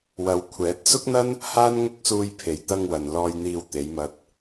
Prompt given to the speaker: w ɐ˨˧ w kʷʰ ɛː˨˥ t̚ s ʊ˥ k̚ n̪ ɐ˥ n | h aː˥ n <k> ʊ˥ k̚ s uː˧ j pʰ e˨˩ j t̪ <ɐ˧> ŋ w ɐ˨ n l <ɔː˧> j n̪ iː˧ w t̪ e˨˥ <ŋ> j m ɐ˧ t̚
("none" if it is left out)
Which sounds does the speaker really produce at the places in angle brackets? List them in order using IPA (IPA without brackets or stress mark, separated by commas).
ŋ, ɐ˧, ɔː˧, none